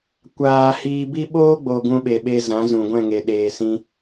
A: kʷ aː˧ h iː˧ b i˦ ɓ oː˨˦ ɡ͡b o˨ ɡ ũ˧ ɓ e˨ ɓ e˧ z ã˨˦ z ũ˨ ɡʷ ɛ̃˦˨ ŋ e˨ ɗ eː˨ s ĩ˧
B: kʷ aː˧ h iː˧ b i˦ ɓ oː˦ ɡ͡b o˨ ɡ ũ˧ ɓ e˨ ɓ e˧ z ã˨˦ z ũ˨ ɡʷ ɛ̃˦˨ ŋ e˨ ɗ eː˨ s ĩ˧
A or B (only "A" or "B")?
B